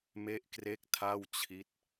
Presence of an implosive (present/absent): absent